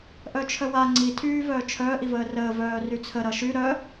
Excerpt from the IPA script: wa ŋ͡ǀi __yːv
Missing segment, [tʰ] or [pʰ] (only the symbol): tʰ